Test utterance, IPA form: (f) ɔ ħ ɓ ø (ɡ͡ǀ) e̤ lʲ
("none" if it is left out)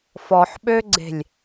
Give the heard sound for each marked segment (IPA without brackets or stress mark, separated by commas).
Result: f, ɡ͡ǀ